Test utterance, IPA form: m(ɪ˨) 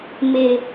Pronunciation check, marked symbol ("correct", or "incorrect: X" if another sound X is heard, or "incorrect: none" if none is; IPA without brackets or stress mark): correct